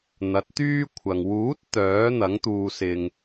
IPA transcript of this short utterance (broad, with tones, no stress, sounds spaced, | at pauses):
n̪ ɐ˨˥ t̚ t̪ yː˥ kʷʰ ɐ˨ ŋ w uː˨˥ t̚ t̪ œː˨˥ n̪ ɐ˨˥ ŋ t̪ uː˧ s ɪ˧ ŋ